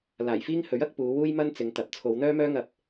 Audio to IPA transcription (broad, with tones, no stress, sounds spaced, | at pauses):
l aː˨˩ j f iː˥ ŋ h ɵ˨˥ ɥ ɐ˨˥ k̚ p uː˨˧ w uː˥ j m ɐ˥ n t͡s ɪ˨˧ ŋ t̪ ɐ˨ p̚ t͡sʰ o˨˧ w n̪ œː˥ m œː˥ ŋ ɐ˧ p̚